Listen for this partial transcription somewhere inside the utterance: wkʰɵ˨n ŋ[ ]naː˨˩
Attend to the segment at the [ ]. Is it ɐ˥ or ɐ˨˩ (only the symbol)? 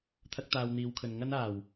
ɐ˥